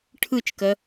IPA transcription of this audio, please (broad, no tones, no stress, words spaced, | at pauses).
ʈʰɯt͡ʃkɜ